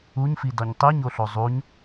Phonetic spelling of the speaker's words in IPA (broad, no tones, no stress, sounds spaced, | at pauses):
u ɲ f i d ɒ ɲ tˤ i ɲ o ɬ o zˤ u ɲ